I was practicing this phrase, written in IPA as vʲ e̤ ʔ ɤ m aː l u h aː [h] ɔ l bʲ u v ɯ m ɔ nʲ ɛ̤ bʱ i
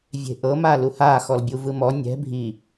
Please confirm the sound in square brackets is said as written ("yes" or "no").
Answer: no